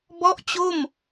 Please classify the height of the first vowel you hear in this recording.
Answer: mid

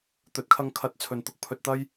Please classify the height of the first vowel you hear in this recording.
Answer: mid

